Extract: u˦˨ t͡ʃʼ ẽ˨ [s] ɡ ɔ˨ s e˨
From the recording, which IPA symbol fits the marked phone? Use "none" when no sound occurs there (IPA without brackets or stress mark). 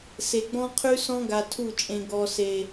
none